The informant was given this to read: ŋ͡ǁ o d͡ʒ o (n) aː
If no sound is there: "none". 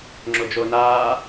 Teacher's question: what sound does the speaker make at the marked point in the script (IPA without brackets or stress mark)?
n